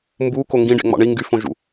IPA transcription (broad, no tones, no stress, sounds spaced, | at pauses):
m b u k o ŋ ɡ ĩ ɖ ḛ ŋ͡m ɑ̰ ɳ i ŋ ɡ y f õ ʒ ṵ